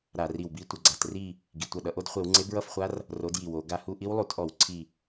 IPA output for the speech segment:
ɾa˧˩˧ri˧˩wbi˦˥ tʷʌ˩ɡ͡ǀa˩t ri˥˨ | ɡi˩tʷʌ˧˩ ɗʌ˩ʔo˥˨dχʷe˧˩˧wŋ͡ǀe˨˥ bɹʌ˥˨fχʷa˦˥r | ro˨˥dji˩wo˧˩˧ ɡa˧˩hu˥˨ʔi˦˥w lˠu˧˩˧tʔɔ˧˩˧w ǀʰi˧˩

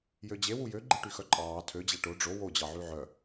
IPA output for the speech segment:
jød͡ʑe wujøɡ͡ǃiʈy xœǃʼɑː tʰød͡ʑæ ʈo ɖ͡ʐo wod͡ʑɑ ʕyʕœ

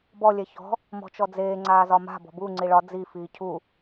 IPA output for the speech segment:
bɔ lʲɛçɔ̤ | mɔ̤t͡ʃɔd͡zeː ŋ͡ǀaːzɒma̤ bɔ̤bu ŋ͡ǀiɭɒ d͡zi fiːcʰu

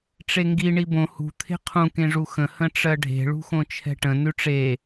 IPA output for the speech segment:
ʈ͡ʂeŋɡi ɳibõ hṳ t̪ʰe̤qʰũ kẽʐuxə̃ hə̃ʈ͡ʂɜɖʱe̤ ɭṳxõt͡ʃʰɛ̤ʈə̃ nʉʈ͡ʂe

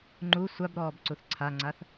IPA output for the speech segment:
ŋ͡ǃu sʷabɾɔːbǀuθ ǀʰaŋ͡ǀaθ

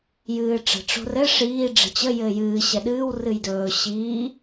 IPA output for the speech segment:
jɨːʈ͡ʂə̤ ʈ͡ʂo̤rɘ ʂiː ɖ͡ʐə̤t͡ɕə jɘːjɨː ɕɛɗɨːw rɨjdɵː ɕiː

